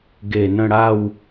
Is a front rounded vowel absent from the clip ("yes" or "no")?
yes